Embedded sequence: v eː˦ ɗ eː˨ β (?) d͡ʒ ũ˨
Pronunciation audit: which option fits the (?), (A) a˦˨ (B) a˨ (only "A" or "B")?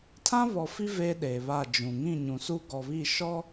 A